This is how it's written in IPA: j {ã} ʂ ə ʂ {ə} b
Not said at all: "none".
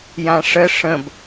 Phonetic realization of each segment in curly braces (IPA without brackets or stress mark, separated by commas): ã, ə̃